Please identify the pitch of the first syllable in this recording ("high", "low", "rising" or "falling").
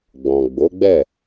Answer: low